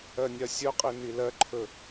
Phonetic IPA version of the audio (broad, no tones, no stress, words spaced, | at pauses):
ɜnʲɐsʲɵqʼi nilɜǃʰɵ